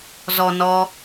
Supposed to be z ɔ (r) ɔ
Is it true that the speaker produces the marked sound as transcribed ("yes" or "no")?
no